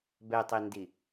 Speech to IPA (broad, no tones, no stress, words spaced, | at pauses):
bɛtˤindi